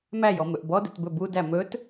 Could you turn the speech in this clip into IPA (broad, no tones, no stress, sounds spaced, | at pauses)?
m æ j ɔ m ɵ ʔ b ɔ d ɵ t b ɵ b u d æ m ɵ t